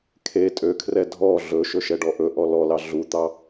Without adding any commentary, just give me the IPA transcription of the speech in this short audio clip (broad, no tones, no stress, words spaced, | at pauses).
kʰe tʼøkʰrɛ dʱɔ ɮɵʃɵʃɛɖɔ ʔɵʔɔ lɔlɑ ɮut̪ɑ